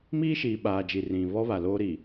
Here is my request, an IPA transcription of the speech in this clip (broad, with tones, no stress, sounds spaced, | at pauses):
m iː˦ ʃ iː˨ ɓ aː˨ d͡ʒ i˨ r ĩ˨ β ɔ˦ β a˨ l oː˦ ɾ i˨